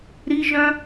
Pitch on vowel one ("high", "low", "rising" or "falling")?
high